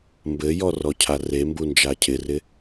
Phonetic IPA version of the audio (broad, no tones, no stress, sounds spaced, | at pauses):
m b ɘ j ɔ r ɔ cʰ a r e m b u n d͡ʒ a cʰ ɪ r ɪ